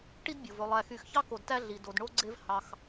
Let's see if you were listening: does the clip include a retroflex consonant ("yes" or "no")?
yes